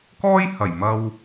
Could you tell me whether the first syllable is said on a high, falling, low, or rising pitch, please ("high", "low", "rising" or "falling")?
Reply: high